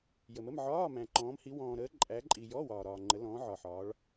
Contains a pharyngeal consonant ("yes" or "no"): yes